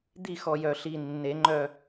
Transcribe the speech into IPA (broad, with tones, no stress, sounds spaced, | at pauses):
d̪ i˦˨ x ɔ˨˩ j œ˨˩ ɬ i˨˩ nː e˨˩˦ ŋ͡ǃ œ˦˨